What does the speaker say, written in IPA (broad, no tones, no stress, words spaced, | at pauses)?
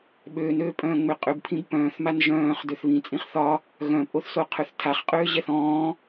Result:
ɓøːnøːpʼœ̃ː ŋ͡mʏqʼʏbpʰĩb pœ̃ːθman ʒœ̃ːχ døθβĩt͡sʼĩχ θɒ | ɣœ̃pʼoθso qʰøθtʰaχqʼøːʑɛθ ɔ̃ː